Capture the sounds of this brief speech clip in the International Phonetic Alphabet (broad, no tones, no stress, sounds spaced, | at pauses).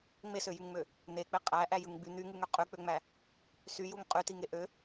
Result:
ŋ͡m e s ø j y ŋ ŋ͡m ø | n̪ e k͡p e qʼ æ ʔ æ j ɯ ŋ ɡ͡b y n̪ y ŋ ɯ ŋ ø qʼ y k͡p ø ŋ͡m æ | s y j u ŋ qʼ y t i ŋ e ʔ ø